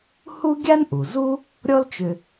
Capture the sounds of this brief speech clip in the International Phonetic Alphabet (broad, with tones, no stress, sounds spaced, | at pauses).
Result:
h u˥ ɡʲ a˥ n ʔ u˩ z u˥ | ɾʲ ɔ˦ l t͡ʃ ʏ˨